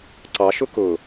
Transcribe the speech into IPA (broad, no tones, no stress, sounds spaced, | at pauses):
ǀ ɑ ʃ ʊ k ʊ